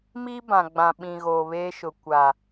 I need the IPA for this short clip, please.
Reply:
m i˦ b ã˨ ɡ͡b ã˨ ɓ ĩ˨ ɣ oː˨ β eː˦ ʃ ʊ˨ kʷ a˨

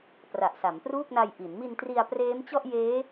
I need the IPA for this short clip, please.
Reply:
p r a˨˩ ʔ s a˩˦ m p r uː˥˩ k̚ n a˧ j ʔ i˩˦ n m i˧ n t r i˧ a̯ p r eː˦˥ m t͡ɕ ɔ˥˩ ʔ j eː˦˥

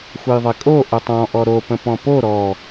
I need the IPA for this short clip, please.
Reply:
xʷ ə j ðˤ ɪ kʼ o ʔ o tˤ ɔ̃ ʔ ɔ ɾ o p ə̃ p ɔ̃ p o ɾ ɔ

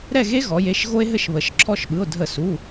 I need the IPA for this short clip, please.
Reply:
ɾ ɛ˦˨ ɣ e˦ ɣ ɔ˩˧ j e˩˧˩ ʃ ɣ o˦ e̯ ɦ ɘ˦˨ ʃ β ə˩˧ ʃ ǁʰ ɔ˦ ʃ ɓ ɯ˩˧˩ o̯ dʱ ə˧˩˧ s u˩˧˩

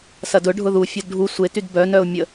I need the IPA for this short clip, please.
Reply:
s ɐ d ʊ ɖʱ ʊ ð u fʲ o d ɖʱ u sʷ e t y d b œ n œ ʊ̯ mʲ ə

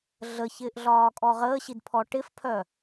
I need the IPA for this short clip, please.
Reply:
ɮ ə ç ɪː ʔ ɮ ɒː kʼ ɔ ʁ əː ɕ i d pʰ ɔ ʈ ɪ f pʰ œ

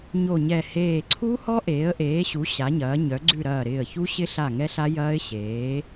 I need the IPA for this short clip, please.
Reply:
ɲ o˧˩ ɲ ɛ˧˩ h eː˧˩ ǀʰ u˦˥ h ɔ˦˥ ʔ eː˩˥ ə̯ ʔ eː˩˥ ɕ u˩˥ ɕ a˩˥ ɲ ɐː˩˥ ɲ œ˩˥ ɡ͡ǀ ʉ˥˨ ɾ ɐː˧˩ ɾ ɪː˧˩ ə̯ ç u˦˥ ɕ ɪ˦˥ ɬ a˧˩ ŋ ɛ˦˥ ɬ a˦˥ j ɐː˦˥ ɪ̯ ɕ eː˩˥

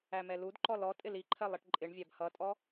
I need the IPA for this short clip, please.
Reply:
æ m ɛ l u d ǃ ɔ l ɔ tʼ ɪ l i ǃʰ ɜ lˠ i ʈ ǃʼ ɪ ɳ vʲ æ b h ʌ tʼ ɔ

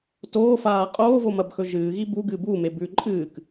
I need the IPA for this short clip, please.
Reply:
t oː f aː qʼ oː v o m ɐ b x ɵ ʒ ɨː ɣ i b u ɡ ɨ b u m e b ʉ ǃʼ ɨː k

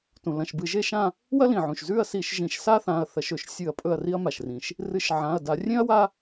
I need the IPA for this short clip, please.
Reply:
t ũ˩ l ɐ̃˩˧˩ ʃ b ɨ˧˩˧ ʒ e˥˧ ʃ ã˥˧ | w ɐ˥ l ĩ˩ ʕ ũ˩ ʃ z ʉ˥˧ ɐ̯ s i˧˩˧ ʃ ʒ ĩ˧˩˧ ʃ s a˥ θ ã˩˧˩ ɐ̯ θ ɐ˧˩˧ ʃ ɵ˧˩˧ ʃ sʲ ɨ˧˩˧ ɐ̯ pʼ ɵ˥˧ ɐ̯ r i˥ ɐ̯ m a˩ ʃ r ĩ˩ ʃ | r ɨ˧˩˧ ʃ ʕ ã˩˧˩ ɐ̯ d a˧˩˧ rʲ ẽ˥ ɐ̯ w a˥

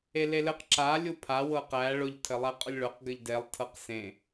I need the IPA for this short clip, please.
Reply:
e l e l ɘ q ǁ a lʲ u pʰ a w ɤ q æ ɭ ʊ ʎ tʰ ɘ lˠ æ qʼ ʊ lʲ ɭ ʊ q ɡ ɘ ʎ d e lˠ tʰ ɤ q s ẽ

